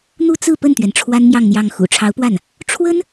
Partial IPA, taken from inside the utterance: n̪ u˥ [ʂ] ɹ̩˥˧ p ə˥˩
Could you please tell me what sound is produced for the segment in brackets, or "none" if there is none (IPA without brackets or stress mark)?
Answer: t͡s